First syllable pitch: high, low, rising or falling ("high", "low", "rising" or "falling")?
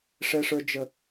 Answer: high